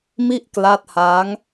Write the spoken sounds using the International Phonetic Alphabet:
mi˥˩ʔkla˦˥t̚ha˦˥ŋ

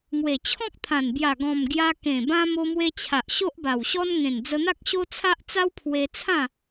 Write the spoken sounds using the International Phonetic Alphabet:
ŋwe˨˩t͡ɕʰɔ̃˦k̚t̪ʰã˨˩nbja˨˩ ɡɔ̃˨˩mɡja˧ kẽ˨˩ bã˧ mo˧mwe˧t͡ɕʰa˨ʔ ɕo˦ʔba˨˩wɕɔ˦n ŋẽ˨˩nd͡zə˧n̪a˦k̚ ɕo˦t͡sʰa˦ʔ t͡sa˦wpʰwe˧t͡sʰã˥˧

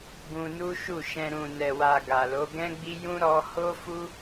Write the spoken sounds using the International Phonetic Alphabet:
ɡũ˧nu˦ʃu˦˨ʃɛ̃˧ ɾũ˨nɛ˨wa˨ ɡa˨lo˨˦ ɡɛ̃˦ɡ͡bi˦jũ˦ ɾɔ˧ho˦ fu˦

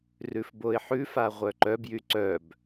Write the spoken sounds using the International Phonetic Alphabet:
rʉfboɪ̯ħʉfa ʁʷœǃœbjy ǀœb

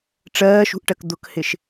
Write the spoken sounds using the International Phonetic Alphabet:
ʈ͡ʂɜːʃṳʔʈɜk d̪ʊkhɪʃ

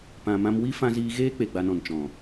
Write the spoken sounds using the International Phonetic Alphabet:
pã˨mã˧mwi˦ fã˧ziː˧ ɣeː˦k͡pe˨ɡ͡ba˨nɔ̃˨n t͡ʃɔ̃˨

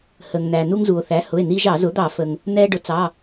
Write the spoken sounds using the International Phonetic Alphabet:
hə˩ŋnæ˩ nu˧ŋzu˩o̯θæ˩˥hʊ˩˧˩e̯ n̪i˧ʒɑ˧˩˧ zʊ˩˥d̪ɑ˧˩˧fə˩ŋ | nɛː˧ɖʊ˩˥t͡sɑ˩˧˩

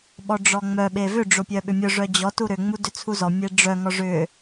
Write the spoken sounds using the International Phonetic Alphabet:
ɓɔɖ͡ʐɔŋ͡mœ ɓevʏ ɖ͡ʐopʲœɓʏmʲʊ ʐœd͡ʑɔ tuɾʏ ŋ͡mudʏt͡sʰuzɔ mʲeɖ͡ʐœ ŋɔʐʏ

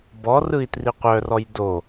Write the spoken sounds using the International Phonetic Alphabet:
bɔrɯi̯ triqʷœrɔj do

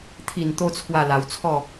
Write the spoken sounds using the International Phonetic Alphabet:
t̪ʰi˥˧n t̪o˦t͡sʰwa˥˧la˧wt͡sʰɔ˥˧

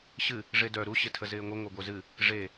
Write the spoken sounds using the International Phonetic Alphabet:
ɕɨ | ʐedœ ɾu ɕɪtʰəzɪːŋʷə ŋʷœɡʷœzɨ | ʐe

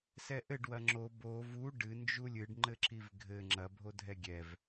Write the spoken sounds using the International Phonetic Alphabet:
sɛʔɘɖ wɐŋ͡ǁo bo vu ɖɨ nd͡ʒulʲɨɖ ŋ͡ǃɘǁivɡʱɘ ŋ͡ǁɐ bʱodʱɛɡʲɛv

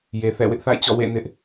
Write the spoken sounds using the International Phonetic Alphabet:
je˨θɛ̰˦˨ wɪ˦ʔθa̰˦˨ɪ̯ t͡ɕɔ̰˦˨wḛ˦˨ nɪ˦ʔ

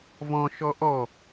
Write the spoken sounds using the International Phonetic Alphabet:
vɔ̃ʃɔ ʔɔ

